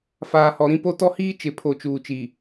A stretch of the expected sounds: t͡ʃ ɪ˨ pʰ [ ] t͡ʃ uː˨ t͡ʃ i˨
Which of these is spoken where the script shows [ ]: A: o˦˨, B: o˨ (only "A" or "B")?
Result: B